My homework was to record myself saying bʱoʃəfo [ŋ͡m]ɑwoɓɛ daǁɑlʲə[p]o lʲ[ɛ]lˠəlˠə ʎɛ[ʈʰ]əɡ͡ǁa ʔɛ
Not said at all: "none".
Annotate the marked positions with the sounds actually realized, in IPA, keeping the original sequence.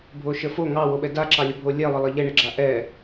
ŋ, bʱ, ɛ, ɳ

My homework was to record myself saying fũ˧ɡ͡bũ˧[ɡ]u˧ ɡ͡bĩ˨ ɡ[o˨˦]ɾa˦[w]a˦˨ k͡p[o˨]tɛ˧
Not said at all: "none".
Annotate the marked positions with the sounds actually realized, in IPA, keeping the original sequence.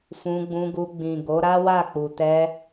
ɡ, o˨˦, w, u˨

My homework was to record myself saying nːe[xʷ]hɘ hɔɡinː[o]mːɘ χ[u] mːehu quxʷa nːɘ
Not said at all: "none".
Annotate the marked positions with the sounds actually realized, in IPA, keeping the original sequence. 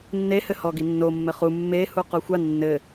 none, o, u

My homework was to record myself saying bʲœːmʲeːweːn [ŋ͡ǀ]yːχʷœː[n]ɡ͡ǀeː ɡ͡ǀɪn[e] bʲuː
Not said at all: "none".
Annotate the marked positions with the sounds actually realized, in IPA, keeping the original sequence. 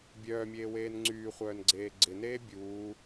ŋ͡ǀ, n, eː

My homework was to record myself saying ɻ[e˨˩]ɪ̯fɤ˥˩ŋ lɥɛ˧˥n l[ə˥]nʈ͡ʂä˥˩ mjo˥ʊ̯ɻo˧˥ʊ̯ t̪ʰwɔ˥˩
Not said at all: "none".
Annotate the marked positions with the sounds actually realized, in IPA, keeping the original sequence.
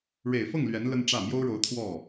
e˨˩, ə˥

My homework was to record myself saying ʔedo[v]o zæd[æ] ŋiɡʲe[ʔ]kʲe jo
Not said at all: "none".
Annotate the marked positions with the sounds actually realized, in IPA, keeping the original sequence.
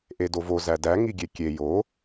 v, æ, none

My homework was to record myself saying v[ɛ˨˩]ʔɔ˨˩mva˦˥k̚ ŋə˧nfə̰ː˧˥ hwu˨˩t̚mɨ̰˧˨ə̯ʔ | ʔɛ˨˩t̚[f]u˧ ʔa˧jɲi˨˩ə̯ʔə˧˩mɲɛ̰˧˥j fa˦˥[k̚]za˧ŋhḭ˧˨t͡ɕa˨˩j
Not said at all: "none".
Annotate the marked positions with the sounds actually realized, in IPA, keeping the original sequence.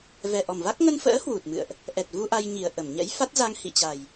ɛ˨˩, v, t̚

